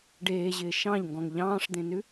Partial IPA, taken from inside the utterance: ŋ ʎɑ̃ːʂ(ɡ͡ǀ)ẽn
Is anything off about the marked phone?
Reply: yes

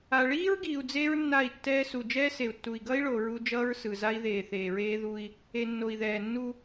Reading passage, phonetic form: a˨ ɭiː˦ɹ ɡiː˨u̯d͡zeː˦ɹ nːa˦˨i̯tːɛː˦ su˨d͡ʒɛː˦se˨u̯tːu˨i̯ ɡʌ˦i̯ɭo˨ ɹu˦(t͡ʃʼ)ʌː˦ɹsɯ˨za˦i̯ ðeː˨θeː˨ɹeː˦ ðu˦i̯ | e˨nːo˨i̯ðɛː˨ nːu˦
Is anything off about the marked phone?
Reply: yes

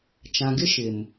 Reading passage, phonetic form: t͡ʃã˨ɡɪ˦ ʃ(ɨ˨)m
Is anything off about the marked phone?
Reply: yes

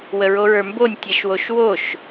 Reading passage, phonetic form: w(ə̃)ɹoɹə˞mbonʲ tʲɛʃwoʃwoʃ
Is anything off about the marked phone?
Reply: yes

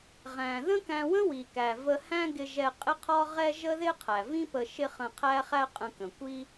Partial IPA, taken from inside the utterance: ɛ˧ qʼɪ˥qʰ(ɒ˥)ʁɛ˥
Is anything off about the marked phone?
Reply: no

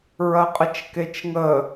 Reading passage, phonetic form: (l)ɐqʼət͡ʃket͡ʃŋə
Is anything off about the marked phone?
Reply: yes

